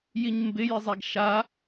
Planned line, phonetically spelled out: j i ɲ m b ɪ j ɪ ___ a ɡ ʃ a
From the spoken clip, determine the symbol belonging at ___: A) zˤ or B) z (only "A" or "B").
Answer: A